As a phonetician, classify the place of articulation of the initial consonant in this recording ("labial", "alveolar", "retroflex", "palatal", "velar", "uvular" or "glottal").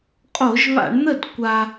uvular